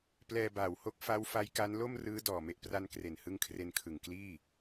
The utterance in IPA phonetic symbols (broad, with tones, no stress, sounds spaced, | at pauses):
p l ɛː˧ b aː˨˩ w h o˦˥ k̚ f a˦˥ w f a˦˥ j k a˦˥ n l o˥˩ m r ɯː˦˥ d ɔː˨˩ m e˨˩ ʔ p r a˧ n k r e˨˩ n h ɯ˦˥ ŋ kʰ r e˧ n kʰ ɯ˨˩ ŋ k l iː˥˩